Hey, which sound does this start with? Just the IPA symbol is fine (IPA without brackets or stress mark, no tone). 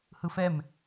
h